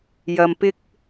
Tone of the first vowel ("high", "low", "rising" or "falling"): low